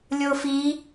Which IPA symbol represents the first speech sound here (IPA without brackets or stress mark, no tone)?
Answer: lʲ